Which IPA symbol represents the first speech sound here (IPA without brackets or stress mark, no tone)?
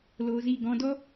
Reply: l